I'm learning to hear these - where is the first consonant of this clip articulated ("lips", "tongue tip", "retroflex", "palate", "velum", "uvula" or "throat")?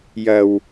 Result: palate